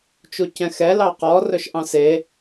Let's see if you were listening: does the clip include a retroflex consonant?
no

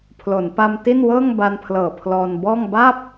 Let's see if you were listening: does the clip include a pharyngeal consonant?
no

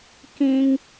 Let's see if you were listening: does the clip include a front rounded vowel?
no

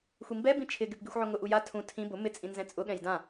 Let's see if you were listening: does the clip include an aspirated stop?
yes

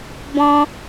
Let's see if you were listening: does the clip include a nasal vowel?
yes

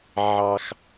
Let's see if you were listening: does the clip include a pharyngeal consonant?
yes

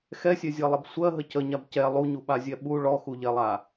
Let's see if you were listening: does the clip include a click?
no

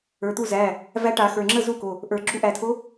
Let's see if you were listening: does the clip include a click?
yes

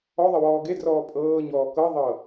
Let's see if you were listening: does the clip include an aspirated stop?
no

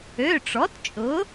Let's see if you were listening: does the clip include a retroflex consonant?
yes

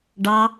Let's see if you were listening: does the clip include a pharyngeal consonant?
no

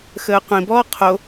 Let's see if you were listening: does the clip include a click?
no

